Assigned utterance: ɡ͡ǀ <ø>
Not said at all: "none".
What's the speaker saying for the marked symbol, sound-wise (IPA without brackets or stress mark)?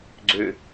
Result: ø